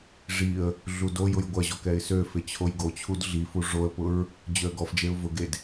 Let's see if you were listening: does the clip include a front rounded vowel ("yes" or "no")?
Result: yes